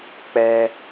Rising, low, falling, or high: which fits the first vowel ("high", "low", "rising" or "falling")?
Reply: high